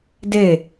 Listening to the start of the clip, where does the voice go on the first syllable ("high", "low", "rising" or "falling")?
falling